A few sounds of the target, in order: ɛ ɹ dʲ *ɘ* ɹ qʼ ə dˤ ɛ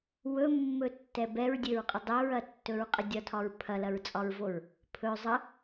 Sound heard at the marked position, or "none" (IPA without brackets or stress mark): ɘ